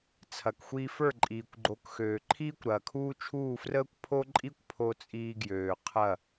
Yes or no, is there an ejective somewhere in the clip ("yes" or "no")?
yes